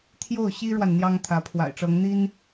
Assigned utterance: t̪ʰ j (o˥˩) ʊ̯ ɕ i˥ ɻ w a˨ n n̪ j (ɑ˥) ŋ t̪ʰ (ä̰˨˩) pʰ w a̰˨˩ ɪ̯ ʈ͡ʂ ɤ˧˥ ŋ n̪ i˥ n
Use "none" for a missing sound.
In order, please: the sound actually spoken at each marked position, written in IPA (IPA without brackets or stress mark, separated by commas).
o˥˩, ɑ˥, ä˧˥